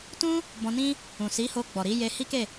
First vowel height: high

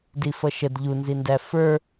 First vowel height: high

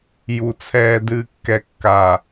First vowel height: high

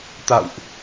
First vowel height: low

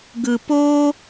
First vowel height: high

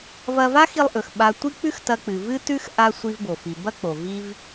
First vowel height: low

